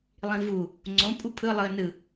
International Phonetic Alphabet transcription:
lˠ ĩ v u | ŋ͡ǀ õ pʼ u pʰ ɯ lˠ ɯ ə̯ n ɯ

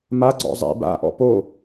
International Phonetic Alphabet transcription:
m a ɡ͡ǀ ɔ̰ zˤ ḭ b a̰ ʔ ɔ̰ p o

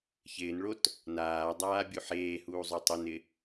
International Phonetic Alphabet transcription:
ç ɪː n ɭ o t | n aː dˤ aː bʲ u ħ eː h uː zˤ o tˤ i n ɪ

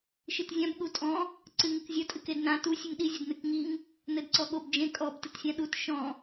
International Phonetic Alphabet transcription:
ʃ ɨ t zʲ ã b ɠ u tʼ ɔ̃ | ǀ ɨ ŋ ɨ k zʲ ɐ tʼ ɨ k e d n ã t u sʲ ɨ ŋ ɗ i zʲ ɘ d n ɨ k ŋ i ŋ | n ɘ d ǀ ɔ ɠ o b d͡ʒ ẽ kʼ ɔ b t ɨ t sʲ ã ɗ u t ʃ ɔ̃

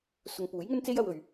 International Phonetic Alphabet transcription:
s ʊ˨ ŋ p uː˨˥ j ŋ ɵ˥ n t͡s e˥ j ɐ˧ w ɵ˨ ɥ

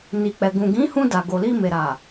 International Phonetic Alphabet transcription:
n i˨ k͡p ɛ˨ ɡ ũ˨ ɡ ĩ˨˦ h ũ˧ d a˨ ɡ o˨ l i˧ m e˨ ɾ a˨

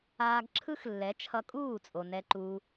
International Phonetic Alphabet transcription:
aː˧ ɡ ǁʰ ɯ˦ x lː ɛ˨˦ t͡ʃʰ ʌ˧ kʼ uː˦˨ t͡sʼ o˨ n ɛ˧ ǃ uː˧

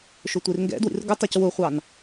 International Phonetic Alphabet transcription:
ʃ ʊ tʷ i r ŋ ɡ ɛ̰ d w ḭ r ɡ ʊ tˤ ɛ c w ʊ χʷ ɑ n

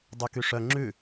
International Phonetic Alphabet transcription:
dˤ y k y ʂ œ ŋ͡ǁ ʉ

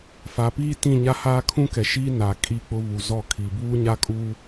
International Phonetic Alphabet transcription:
f a˨ p iː˦ t ĩ˦˨ ɲ a˦ h aː˦ kʰ ũ˦ k ɛ˨ ʃ iː˦ n a˨ kʼ i˦ k͡p ʊ˦ β u˨ z ɔ˦˨ kʰ i˨ b uː˦ ɲ a˦ kʼ uː˦

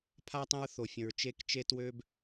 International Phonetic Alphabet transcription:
pʰ a˦ tˤ ẽ˦ ɹ θ o˧ fʲ ə̃˧ ɹ t͡ʃ e˦ k t͡ʃ e˦ t w ø˦ b

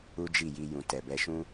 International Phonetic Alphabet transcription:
u˦ d͡ʒ i˦˨ j i˧ j ũ˨ t ɛ˨ b ɛ˧ ʃ ũ˦

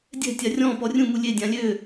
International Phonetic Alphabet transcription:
dʲ ɛ̤ tʲ a rʲ ɔ̃ p ɔ rʲ ũ m u lʲ e dʲ ã lʲ ø

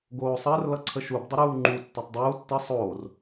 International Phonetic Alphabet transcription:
ɡ oː sˤ əː r l ʌ ǀʰ ə ʃ u b dˤ ə ɾ uː ŋ͡ǃ u tː ʌ tˤ dˤ uː tː ə sˤ oː r

